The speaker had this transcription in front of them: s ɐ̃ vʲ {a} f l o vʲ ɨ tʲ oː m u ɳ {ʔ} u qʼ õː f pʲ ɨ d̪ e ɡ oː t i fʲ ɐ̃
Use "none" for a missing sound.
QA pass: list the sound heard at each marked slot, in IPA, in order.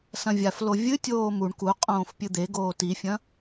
a, k

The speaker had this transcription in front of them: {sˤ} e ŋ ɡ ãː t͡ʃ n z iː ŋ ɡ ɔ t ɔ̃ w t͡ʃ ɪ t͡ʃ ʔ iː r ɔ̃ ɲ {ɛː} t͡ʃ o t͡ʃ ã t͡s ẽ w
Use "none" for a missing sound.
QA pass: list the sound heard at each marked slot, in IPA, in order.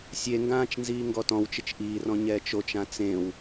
sʲ, ɛː

